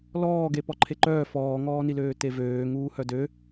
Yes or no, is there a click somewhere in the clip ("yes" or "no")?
yes